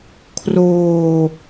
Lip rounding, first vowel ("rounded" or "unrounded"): rounded